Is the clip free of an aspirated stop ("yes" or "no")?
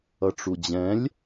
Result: yes